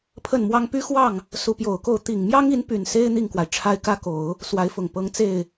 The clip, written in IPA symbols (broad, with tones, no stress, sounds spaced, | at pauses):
pʰ ə˥˩ n m w ɑ˥ ŋ p y˥ x w ɑ˥˩ ŋ | s u˧˥ p j o˨˩ ʊ̯ k o˥˩ ʊ̯ t̪ i˨˩ ŋ m j ɑ˥ ŋ i˧˥ n p y˨˩ n s e˥ ɪ̯ n̪ i˥˩ ŋ k w a˩ ɪ̯ ʈ͡ʂʰ a˥ ɪ̯ k ä˥ k o˨˩˦ ʊ̯ | s w a˧˥ ɪ̯ f ʊ˨˩ ŋ p ɤ˧˥ ŋ t͡s e˥˩ ɪ̯